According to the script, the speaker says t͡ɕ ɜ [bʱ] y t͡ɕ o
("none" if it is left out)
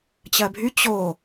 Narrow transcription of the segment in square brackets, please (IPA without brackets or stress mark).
bʱ